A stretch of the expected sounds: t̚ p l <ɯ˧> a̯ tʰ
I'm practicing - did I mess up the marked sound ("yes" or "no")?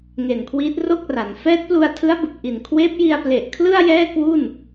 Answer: yes